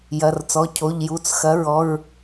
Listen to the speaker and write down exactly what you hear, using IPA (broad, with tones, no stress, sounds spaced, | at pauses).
j ɐ˩˧˩ r t͡s ɔ˩˧˩ cʰ o˩˧˩ ʎ j u˩˧˩ t͡s x ɐ˩˥ ɹ ɔ˩˧˩ ɹ